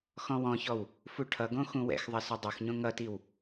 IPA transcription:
x ɔ̃ w ɔ̃ ç ɔ w | f u ʈʰ ʌ ɡ õ x ũ w ɛ̰ x ðˤ ɐ s ø dˤ u x ɲ õ ŋ ʌ t i w

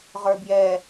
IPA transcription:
ʁ ə˞ b j ɛ

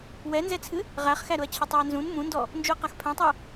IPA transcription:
w ɛ n z ɛ t͡sʰ ɨ | ʁ æ χ x æ ɾ ʊ ɐ̯ t͡ɕʰ ʊ tˤ ɛ ɐ̯ n z ũ n m ũ n d ɔ | n d͡ʒ u ɐ̯ q a x pʰ ɛ̃ tˤ æ

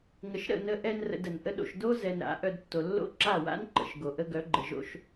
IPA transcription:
ŋ ə˨ ʃ ɾ ə̰˦˨ n ə˧ ʔ ɛ˧ n r ə̰˧ d ə˨ n ʔ ə˦ ɗ o̰˨ ʃ d o˦ z ɛ˨ n ɾ a̰˨˦ ʔ œ˧ d tː o˨ lː o̰˦ ǁ a˦˨ w a̰˦ n ǃ ə̰˨ ʃ ɡ o˨ ʔ ə˦ ɡ œ˨˦ ɡ͡ǃ ə˨ ʒ o̰˧ ʃ

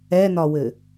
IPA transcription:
ɛ n ɒ w ɘ

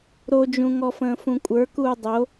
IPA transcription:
ɾ o d͡ʒ ũ ŋ ɔ f ə̃ː f ũ kʷʼ ə˞ k uː dˤ o

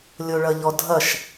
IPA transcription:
lʲ o ɭ ɐ ʎ ɔ dʱ ɐ ʃ

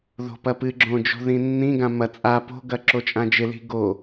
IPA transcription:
ð o̤ p ɐ p ɨ ɡ͡ǁ õ d͡ʒ o̤ ð ĩ nː ĩ ɡ ã m ɐ t͡sʼ a p o̤ ɡ ɐ ǁ o t͡ʃʼ ã d͡ʒ ɪ l i̤ ɡ o

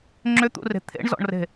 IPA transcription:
ŋ͡ǁ ʏ t̪ ṵ r e̤ t̪ʰ ḛ ɳ z ɔ̰ ɳ r e̤

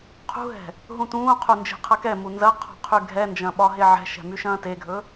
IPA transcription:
qʰ ṳ ɦ ɛ̤ | ɦ ũ t ũː qʰ u n d͡ʒ e̤ qʰ ɐ k ɛ m u n z ɐ qʰ ɔ̤ qʰ y ɡʱ ɛ n d͡ʒ ɐ̃ ɓ ɒ ɦ e ʕ ɛ̤ ʃ ɛ̤ m y ʃ ɐ̃ː t e ɡʱ ɵ

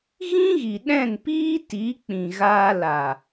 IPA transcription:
ɣ ĩ˦ ɣ i˨ ɗ ɛ̃˦˨ n p iː˦ t i˨˦ k͡p ĩ˨ ɣ aː˧ l a˨

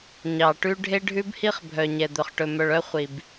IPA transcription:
ɲ ɑ˨ ʈ ʉ˦ ɖʱ e˦ ɖʱ ʉ˦ b h i˦ χ bʱ œ˨ ɲ ɛ˨ d̪ œ˨ χ ʈ ɵ˨ m œ˨ ɭ œ˦ χʷ i˨ b

